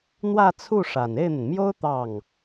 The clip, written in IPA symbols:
n̪ w ä˥˧ t͡sʰ u˥˩ ʂ a˨˩ n e˥˩ ɪ̯ n̪ ə˩ n m j o˥ ʊ̯ t̪ ɑ˥˩ ŋ

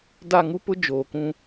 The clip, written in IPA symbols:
d a˦˨ ŋ u˦ p ʊ˦ d͡ʒ oː˨ k ũ˦

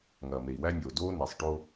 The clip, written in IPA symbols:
ŋ ɐː˨ m e˨ i̯ w æ˦ nʲ oː˨ d oː˦ n e˨ sˤ ʈ o˦

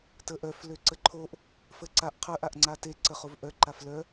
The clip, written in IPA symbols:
t ə ʔ œ f l ø ǀ ə ǃʰ o ʔ | f ə ǀ a ʔ qʰ œ ʔ a ʔ ŋ͡ǀ a t e ǀ ə χ o v ʔ œ ǃ a f l œ

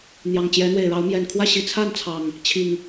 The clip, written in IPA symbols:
n̪ j ɑ˨˩ ŋ t͡ɕ j ɛ˨˦ n̪ w e˨˩ ɪ̯ ɻ ɑ˨˦ ʊ̯ m j ɛ˨˩ n kʰ w ä˥˨ ɕ i˨˩ t͡sʰ a˥˨ n t͡sʰ ɑ˨˩ ŋ | t͡ɕʰ i˨˩ ŋ

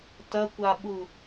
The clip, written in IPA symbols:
t ɐ kʷ a ɓ u

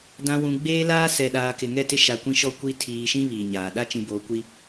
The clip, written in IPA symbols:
d ã˨ w ũ˨ ɡ͡b eː˦ l aː˦ s ɛ˨ ɗ aː˨ k ɪ˨ ŋ ɛ˦˨ t ɪ˦ ʃ a˨ kʷ ĩ˦ ʃ ɔ˦ kʷ i˦ tʰ iː˨ ʃ ĩ˦ β iː˨ ɲ aː˨ ɗ a˦ t͡ʃ ĩ˨ b oː˨ kʷ i˦

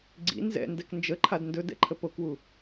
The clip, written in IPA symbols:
ɡ͡ǀ ḭ n z ɛ̰ n d ɛ k n d͡ʒ ə ǃʰ a d n d ɵ d ɛ̰ ǃʰ ə p o k w u

